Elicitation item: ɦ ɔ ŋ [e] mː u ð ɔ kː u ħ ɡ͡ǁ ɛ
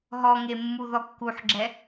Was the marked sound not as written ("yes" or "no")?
no